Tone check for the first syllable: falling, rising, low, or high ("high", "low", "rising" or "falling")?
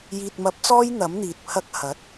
low